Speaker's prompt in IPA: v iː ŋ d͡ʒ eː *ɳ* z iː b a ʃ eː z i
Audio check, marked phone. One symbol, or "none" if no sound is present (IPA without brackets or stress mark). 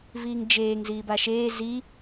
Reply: ŋ